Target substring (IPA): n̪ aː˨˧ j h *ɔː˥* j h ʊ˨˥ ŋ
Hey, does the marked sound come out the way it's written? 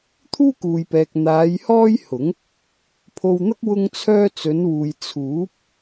yes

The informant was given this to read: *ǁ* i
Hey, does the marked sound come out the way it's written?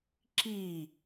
yes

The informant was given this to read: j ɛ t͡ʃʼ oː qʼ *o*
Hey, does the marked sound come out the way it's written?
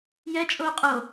yes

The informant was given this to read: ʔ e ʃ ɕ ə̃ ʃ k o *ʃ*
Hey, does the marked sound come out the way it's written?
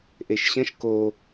no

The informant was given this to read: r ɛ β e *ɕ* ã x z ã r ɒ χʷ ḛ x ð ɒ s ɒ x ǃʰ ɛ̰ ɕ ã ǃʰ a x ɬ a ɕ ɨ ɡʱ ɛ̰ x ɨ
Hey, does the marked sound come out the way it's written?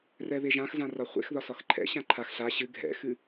no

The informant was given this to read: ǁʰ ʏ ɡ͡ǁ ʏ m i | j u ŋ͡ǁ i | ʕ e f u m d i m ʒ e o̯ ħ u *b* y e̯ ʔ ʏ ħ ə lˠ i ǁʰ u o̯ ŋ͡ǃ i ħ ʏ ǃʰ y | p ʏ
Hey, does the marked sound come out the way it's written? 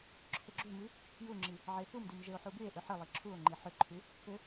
yes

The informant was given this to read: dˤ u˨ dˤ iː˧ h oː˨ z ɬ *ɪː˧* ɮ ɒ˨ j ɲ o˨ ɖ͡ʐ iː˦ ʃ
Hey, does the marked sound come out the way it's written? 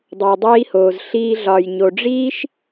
no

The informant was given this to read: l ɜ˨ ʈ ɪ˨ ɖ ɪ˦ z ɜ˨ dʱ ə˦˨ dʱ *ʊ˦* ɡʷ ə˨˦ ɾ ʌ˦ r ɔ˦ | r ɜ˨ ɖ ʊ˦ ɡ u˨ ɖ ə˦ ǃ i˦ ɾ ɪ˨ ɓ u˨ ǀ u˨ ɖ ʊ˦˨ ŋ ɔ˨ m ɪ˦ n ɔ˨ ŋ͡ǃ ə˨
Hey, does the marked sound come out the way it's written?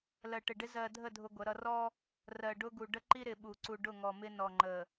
yes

